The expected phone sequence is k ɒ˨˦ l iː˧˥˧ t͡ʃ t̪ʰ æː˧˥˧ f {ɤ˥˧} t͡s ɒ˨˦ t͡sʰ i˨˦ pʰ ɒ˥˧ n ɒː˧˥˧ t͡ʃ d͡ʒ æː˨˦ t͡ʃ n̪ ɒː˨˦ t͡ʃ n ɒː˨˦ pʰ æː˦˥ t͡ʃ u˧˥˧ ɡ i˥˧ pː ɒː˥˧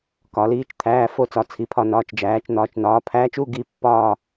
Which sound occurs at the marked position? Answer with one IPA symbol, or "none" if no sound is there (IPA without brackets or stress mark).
o˥˧